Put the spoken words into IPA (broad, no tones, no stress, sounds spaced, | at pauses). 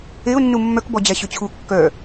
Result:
e ʊ̯ nː u mː œ k b ɔ d͡ʑ æ ɕ ø t͡ɕʰ u kː œ